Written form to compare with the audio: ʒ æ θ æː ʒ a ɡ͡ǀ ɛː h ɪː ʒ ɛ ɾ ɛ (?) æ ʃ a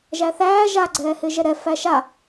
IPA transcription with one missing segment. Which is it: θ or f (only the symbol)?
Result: f